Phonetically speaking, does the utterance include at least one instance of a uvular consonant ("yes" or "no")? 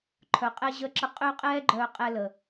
yes